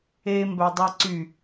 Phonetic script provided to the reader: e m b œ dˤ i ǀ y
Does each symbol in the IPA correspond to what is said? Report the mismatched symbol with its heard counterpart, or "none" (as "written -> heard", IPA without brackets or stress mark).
i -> e